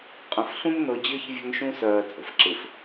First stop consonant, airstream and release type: ejective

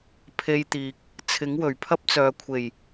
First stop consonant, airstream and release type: aspirated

